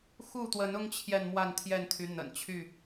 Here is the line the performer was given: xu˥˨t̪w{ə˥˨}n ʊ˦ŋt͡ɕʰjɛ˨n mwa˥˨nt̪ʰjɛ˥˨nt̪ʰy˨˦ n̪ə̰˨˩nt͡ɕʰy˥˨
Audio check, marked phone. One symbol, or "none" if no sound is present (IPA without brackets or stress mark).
ə˨˦